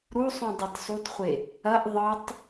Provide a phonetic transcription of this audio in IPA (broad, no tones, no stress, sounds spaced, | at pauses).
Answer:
ɾ u sˤ ũ dˤ ɛ t sˤ u t χʷ e | ɐ ʔ ðˤ ɤ tˤ